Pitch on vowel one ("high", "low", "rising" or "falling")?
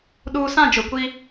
low